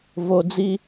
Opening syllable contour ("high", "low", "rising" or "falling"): low